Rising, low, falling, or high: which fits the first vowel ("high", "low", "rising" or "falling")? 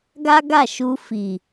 high